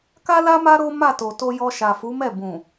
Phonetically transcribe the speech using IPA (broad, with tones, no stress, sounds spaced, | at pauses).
k a˦ l a˦ m a˦ ɾ o˦ m a˦˨ t o˨ t o˧ j ɔ˧ ʃ a˨ f u˨˦ m ɛ˦˨ b ũ˨